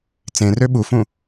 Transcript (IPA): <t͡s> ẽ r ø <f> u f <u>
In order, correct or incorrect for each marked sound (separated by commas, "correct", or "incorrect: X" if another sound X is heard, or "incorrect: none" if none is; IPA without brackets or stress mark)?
correct, incorrect: ɓ, incorrect: ũ